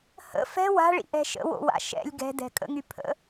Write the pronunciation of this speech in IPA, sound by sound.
h ə̰ f ɛ̤ w a̤ ɭ ḭ ʔ ɛ̤ ʃ ə̰ w o̰ w a̰ ʃ ɛ̰ lʲ ɡ ɛ̤ d ɛ̤ kʼ ə̰ ŋ y pʰ ə̰

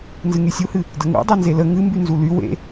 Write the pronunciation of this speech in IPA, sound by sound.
n z ɨ ŋ y sʲ u h ɨ | d ə ŋ ṵ dˤ e n z e l ə ŋ ɨ m b y n z u l y w ḛ

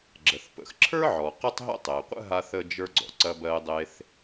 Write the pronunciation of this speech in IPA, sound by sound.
ɡ͡ǁ ə˩ θ p ə̰˩ x ǁʰ ə˞˥ ʕ ɔ˩ q ə˥ tˤ ɦ ə̰˥ tˤ e˩ qʷ ə̰˥ ɦ a˧ θ ə˧ d͡ʒ ə˞˧ ɡ͡ǀ ɔ̰˩ ǀ ɐ˧ b ɜ˧ ɪ̯ dˤ e˧ θ

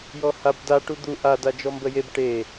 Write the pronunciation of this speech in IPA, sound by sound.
j ɔ h a b d a ʈ u d̪ u ʔ a d a d͡ʒ ɔ m b ə j e b ʈ e

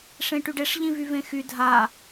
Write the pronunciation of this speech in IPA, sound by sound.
ʂ ẽ ʈ y ɖ e ʂ ʎ ĩ v y v ẽ x y dʱ a

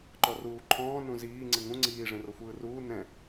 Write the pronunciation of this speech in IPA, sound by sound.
ǃ ɔ r uː ǃʰ ɔ̃ː n ũ z iː ŋ͡ǀ ɯ ŋ ũ ŋ͡ǀ iː ʐ ẽ r ɤ xʷ ɯː r uː n ɛ̃

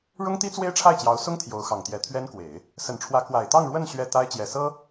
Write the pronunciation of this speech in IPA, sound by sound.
ɻ ʊ˥ ŋ t̪ i˥ t͡s w e˥ ɪ̯ ʈ͡ʂʰ a˥˩ ɪ̯ t͡ɕ j ɑ˧˥ ʊ̯ s ʊ˥ ŋ t̪ʰ j o˧˥ ʊ̯ x ɑ˨˩ ŋ t̪ j ɛ˧˥ t̪ʰ ɥ ɛ˥ n k w e˨˩˦ ɪ̯ | s ə˨˩ n ʈ͡ʂʰ w ä˧˥ k w a˨˩ ɪ̯ t̪ ɑ˥˧ ŋ ɻ w ə˥˧ n ɕ ɥ ɛ˥˩ t̪ a˥ ɪ̯ t͡ɕ j ɛ˨˩ s ɤ˥

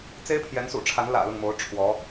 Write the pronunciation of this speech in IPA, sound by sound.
t͡s e˥ ɪ̯ pʰ j ɛ˧˥ n s ṵ˨˩ ʈ͡ʂʰ a˧˥ n l ä̰˨˩ l ʊ˥˩ ŋ m o˧˥ ʊ̯ ʈ͡ʂʰ w ɔ˧˥

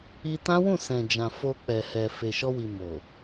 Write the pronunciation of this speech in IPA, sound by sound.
i˧ t ã˦ w ũ˦˨ s ɛ̃˨ d͡ʒ ã˨ f o˧ k͡p ɛ˨ h ɛ˨ f e˨ ʃ ɔ˧ w i˨ m o˨

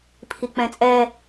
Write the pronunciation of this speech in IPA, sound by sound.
pʰ i k͡p ɛ̃ t͡sʼ ɛ

